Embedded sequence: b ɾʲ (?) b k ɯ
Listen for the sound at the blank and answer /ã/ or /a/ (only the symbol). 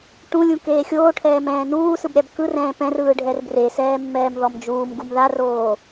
a